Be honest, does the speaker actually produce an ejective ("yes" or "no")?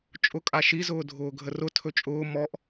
yes